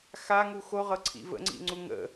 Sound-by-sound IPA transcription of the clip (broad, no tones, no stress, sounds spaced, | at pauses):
x a ŋ u x o ʁ ɤ ǀʰ ḭ v ə̰ ŋ͡ǀ ḭ ŋ͡ǀ u ŋ ə̰